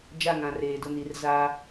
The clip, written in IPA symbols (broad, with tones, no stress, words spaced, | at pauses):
d͡ʒa˦˨ŋã˨reː˨dʊ˦˨ ni˨˦rza˦